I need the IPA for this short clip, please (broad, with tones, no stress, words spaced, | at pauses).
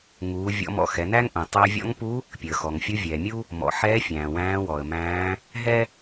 ŋuː˩˧ vʲɔ̰˧˥mɔ̰˧ xɛ˩˧næ˥ŋʔũ˩ tˤæ˧vʲɔ̰˧˥ŋpu˧˥ | pʲəː˩xɔ˩ŋfʲu˧˥ vʲɛː˩mʲu˥ | mɔ̰˩˧ħɛː˧˥fʲæ̃ː˩ wæ̃ː˧˥wɔ˩ə̯mæ̃ː˧˥ | ɦɛ˥